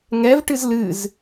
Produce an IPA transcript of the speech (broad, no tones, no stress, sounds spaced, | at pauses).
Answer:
ŋ ɛ v ʈ ɨ z l ɨ z